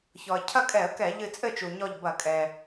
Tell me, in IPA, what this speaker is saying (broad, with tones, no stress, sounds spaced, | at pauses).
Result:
ç ɔ˩ ə̯ cʰ ɐ˥˨ kʼ ɛ˧˩˧ ə̯ k ɛ˧˩˧ ʎ ɨ˧˩ t͡sʼ ɘ˥˨ t͡ʃ u˩ ɲ ɔ˧˩ ʎ b ɐ˧˩˧ kʼ ɛ˩